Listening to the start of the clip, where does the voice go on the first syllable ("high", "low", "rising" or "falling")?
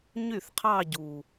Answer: falling